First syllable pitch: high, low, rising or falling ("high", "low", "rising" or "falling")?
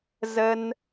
high